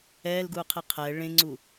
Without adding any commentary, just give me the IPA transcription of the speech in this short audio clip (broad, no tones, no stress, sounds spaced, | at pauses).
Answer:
ɛː l ɡ uː qʰ i qʰ ɛ ɭ ẽ ŋ͡ǀ u